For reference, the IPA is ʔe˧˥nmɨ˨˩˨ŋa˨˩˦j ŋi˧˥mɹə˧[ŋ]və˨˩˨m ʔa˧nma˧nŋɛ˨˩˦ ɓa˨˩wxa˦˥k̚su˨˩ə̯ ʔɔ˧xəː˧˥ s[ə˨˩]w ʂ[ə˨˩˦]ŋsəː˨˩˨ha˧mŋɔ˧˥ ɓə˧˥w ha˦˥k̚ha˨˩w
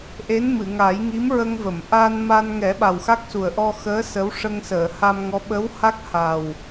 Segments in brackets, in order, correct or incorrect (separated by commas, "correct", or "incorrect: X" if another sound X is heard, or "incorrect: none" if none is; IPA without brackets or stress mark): correct, incorrect: ə˧˥, incorrect: ə˧